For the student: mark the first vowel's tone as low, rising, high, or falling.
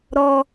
high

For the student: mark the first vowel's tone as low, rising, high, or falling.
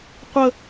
high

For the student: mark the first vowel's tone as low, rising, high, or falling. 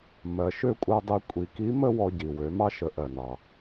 low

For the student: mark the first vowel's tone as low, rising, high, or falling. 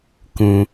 low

